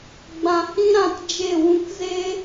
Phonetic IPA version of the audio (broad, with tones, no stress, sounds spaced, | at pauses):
ɡ͡b ã˧ h ĩ˦ ɾ ã˦˨ t d͡ʒ e˦˨ w ũ˦ k z e˦